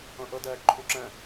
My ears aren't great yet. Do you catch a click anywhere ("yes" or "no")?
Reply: yes